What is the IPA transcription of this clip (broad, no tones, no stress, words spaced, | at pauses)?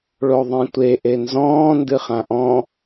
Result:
ɭoðˤẽtʷe ʔenzɔ̃ː ndɨχãʔɔ̃